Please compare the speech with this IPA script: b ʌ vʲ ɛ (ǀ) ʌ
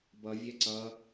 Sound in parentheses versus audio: correct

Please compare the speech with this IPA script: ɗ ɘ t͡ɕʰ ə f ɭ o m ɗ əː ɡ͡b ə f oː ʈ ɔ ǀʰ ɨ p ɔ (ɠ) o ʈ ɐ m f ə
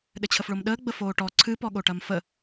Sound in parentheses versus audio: correct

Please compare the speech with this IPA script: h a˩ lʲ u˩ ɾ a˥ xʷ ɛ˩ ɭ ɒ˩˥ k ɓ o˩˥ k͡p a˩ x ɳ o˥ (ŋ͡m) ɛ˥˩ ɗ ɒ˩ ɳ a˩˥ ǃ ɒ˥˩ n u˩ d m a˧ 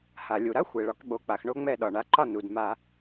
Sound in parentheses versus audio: correct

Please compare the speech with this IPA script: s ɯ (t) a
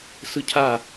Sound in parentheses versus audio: incorrect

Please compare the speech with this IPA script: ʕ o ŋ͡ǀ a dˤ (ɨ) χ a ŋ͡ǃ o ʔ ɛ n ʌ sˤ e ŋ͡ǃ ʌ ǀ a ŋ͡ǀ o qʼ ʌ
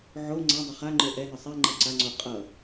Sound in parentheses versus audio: incorrect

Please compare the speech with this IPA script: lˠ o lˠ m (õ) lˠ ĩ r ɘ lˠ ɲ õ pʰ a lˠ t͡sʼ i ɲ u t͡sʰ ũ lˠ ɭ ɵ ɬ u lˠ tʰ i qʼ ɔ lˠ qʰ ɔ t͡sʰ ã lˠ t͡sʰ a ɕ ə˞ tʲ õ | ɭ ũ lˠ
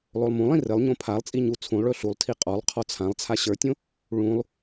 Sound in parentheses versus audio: incorrect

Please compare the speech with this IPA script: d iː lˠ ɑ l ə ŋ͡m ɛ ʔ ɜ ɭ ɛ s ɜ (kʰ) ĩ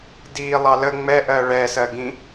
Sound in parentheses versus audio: incorrect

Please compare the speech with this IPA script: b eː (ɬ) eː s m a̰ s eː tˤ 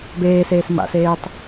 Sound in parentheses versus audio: incorrect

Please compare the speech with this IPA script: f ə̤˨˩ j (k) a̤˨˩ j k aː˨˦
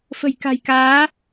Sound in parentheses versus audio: correct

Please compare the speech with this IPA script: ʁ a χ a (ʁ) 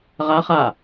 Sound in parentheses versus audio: incorrect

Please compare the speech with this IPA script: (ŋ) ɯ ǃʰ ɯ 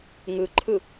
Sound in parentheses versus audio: correct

